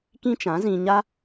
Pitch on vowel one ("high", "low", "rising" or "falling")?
high